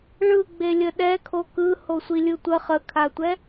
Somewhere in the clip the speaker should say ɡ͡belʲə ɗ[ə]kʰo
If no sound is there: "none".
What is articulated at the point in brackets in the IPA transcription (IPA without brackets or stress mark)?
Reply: ɛ